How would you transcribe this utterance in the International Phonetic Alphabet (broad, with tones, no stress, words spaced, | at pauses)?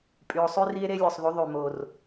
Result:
pʼy˨o̯ sˤy˦ri˦e̯ ɾe˦lʲo˨sˤðy˨˦ ðˤy˨mo˨r